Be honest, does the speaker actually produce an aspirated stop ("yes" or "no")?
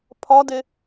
yes